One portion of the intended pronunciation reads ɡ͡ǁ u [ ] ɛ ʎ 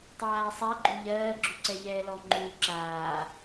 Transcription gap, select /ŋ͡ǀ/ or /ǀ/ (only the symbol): ǀ